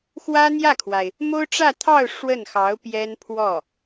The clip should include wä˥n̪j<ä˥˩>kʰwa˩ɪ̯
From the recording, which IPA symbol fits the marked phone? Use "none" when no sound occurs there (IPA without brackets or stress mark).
ä˥˩